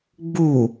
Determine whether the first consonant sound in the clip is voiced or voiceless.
voiced